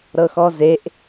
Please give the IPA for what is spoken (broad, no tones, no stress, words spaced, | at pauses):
ɾɤxɔzeʔ